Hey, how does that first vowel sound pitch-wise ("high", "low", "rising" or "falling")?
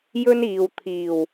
high